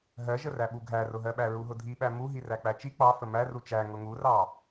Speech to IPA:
ɦ ɜ ʒ ə r æ ɓ u ɡʱ æ r ʊ ɦ ɜ ɓ æ ɹ u ɦ ʊ dʱ i ɓ æ m u ɦ i r æ k͡p æ t͡ʃ i k͡p ɑ f ə m æ r u t͡ʃ æ ŋ ʊ ŋ u r ɑ

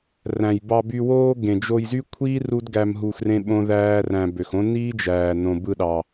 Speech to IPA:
r æ̃˨ j b ɑ˧ b y˧ w oː˦ ɡ ẽ˨ d͡ʒ o˧ j z y˦ kʷʰ iː˦ r u˦ d ɡ æ˧ m ɦ u˧ x r ẽ˦ ɓ õ˦ ð æː˦ r æ̃˧ b ø˨ x õ˦ n iː˦ d͡ʒ æː˨ n õ˧ b ɯ˧ ɗ ɑ˨

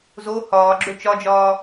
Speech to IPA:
z o h ɒː ɡ͡ǁ ɵ t͡ʃ ɒ d͡ʒ ɒː

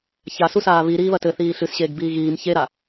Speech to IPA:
ç a s u s aː β i ɾ iː β ɐ t ɘ θ iː ɬ ɨ s ɕ eː ɡ b iː ɣ iː m ç e ɾ a

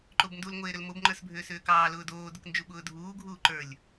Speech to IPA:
ǃ o b n d u l ŋʷ eː ɾ ʏ l m o b ŋ͡ǃ ə˞ s bʱ ʏː s ʏː k ɑː l ʊː d oː d ʊ k n d͡ʒ u ɓ ʊː dʱ uː ɡʱ uː ǃ ə˞ lʲ

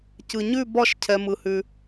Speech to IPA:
c ɯ˧ ɲ ʉ˥˧ b ɒ˥˧ ʃ cʰ ɛ˧ m ɯ˧ h ʉ˧

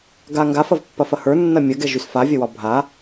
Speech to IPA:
ɡ a ŋ ɡ a f ɐ v pː ɐ f ɐ h ə˞ nː ɐ mʲ ɐ ɡ ɛ ʒ y s f a vʲ ɐ w ɒ bʱ a

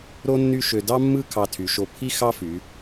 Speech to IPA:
ɾ o˥ nː y˥˧ ʃ ø˧ d ɑ˥ mː ɯ˥˧ kʰ ɑ˧˩ tʰ y˩˧ ʃ o˧ pʰ i˥ x ɑ˥ f y˩˧

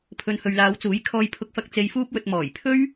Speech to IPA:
pʰ ɵ˨ n h ɵ˨ ɥ l aː˨˧ w t͡s uː˨˥ j kʰ ɔː˧ j pʰ ʊ˧ k̚ f ɐ˧ k̚ t͡s e˧ j f uː˥ p̚ w ɵ˧ t̚ m ɔː˨˩ j pʰ ɵ˥ ɥ

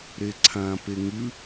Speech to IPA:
ɾ e ǀʰ ã p e ŋ ʉ

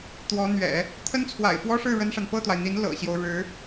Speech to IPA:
t̪ w ɔ˧˥ n̪ ɥ ɛ̰˨˩˦ | t̪ʰ ə˥ n t͡sʰ w a̰˨˩ ɪ̯ f w ɔ˥ ʂ ɻ̩˥˩ ɻ ə˥ n ʂ a˨ n p ɤ˥˩ t̪ w a˩ ɪ̯ n̪ i˧˥ n l ɤ̰˨˩ ɕ j o˦ ʊ̯ ɻ ɻ̩˧˥

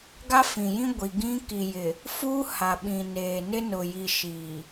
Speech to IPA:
ɡ a˦ f ĩ˨ j ĩ˦ ɡʷ i˨ ɡ ĩ˦ k i˨ j ɪ˨ | f uː˦ h a˨ ɓ ĩ˨ n eː˨ n ɪ˦ n ʊ˨ j i˨ ʃ i˨

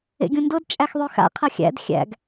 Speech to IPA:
ḛ ɡʲ ũ n d ɤ d t͡ʃʼ æ x ðˤ ø x a̰ qʰ ɐ xʲ æ̰ d xʲ æ̰ ɡ

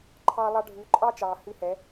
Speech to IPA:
ǃʰ ɑː˦ lˠ ɑ˦ ɖʱ ʉː˧ ǃʼ ɑ˦ t͡ʃ ɑː˨ h ʉ˧ h ɛ˨˦

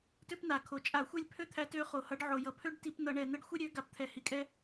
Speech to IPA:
t ø˦ p n a˩ kʰ o˩ t͡ʃʼ a˧˩˧ xʷ ɛ˦ lʲ pʰ ø˦ t̪ʰ æ˨˦ t ø˨˦ χ o˩ h ʌ˨˦ ɖ ʕ o˩ j ʌ˩ pʰ ø˦ ɖ t i˧˩˧ p n ʌ˧˩˧ ɳ ɛ˩ n̪ ɛ˦ ɖ xʷ e˦ ɾʲ ø˨˦ ɡ a˩ p t̪ʰ ɛ˩ h i˩ kʼ ɛ˦

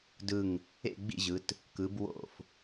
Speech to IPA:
d ɯ˧˩ ŋ | ḛ˥˨ ɡ͡b ḭ˥˨ ʑ ɯ˩˧ t | k ɯ˩˧ b w o̰˧˩ f

